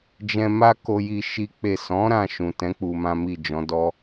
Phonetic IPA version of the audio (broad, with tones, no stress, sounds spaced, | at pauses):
d͡ʒ ɛ̃˧ m a˦ k o˧ j i˧ ʃ i˦ k͡p e˦˨ s ɔ̃˨˦ ɾ ã˧ ʃ ũ˨ t ɛ̃˨˦ k͡p u˧ m ã˦ m i˦˨ d͡ʒ ɔ̃˨˦ d ɔ˦